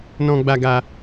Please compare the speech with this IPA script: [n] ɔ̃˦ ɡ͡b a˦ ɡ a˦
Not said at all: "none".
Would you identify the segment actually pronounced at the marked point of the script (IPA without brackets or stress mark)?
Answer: n